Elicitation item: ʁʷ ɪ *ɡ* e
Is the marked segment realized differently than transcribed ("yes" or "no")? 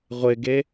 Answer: no